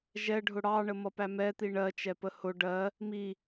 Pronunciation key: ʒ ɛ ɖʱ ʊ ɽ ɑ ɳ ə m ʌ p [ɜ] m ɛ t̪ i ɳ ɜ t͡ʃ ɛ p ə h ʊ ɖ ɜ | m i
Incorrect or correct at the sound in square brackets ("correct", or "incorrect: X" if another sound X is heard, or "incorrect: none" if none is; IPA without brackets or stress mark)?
incorrect: æ